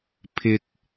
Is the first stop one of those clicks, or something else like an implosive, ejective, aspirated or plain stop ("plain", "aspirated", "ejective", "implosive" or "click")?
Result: aspirated